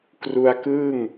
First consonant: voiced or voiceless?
voiceless